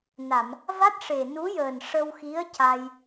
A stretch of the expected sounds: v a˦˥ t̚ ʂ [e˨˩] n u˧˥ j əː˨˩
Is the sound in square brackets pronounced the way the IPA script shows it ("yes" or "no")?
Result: yes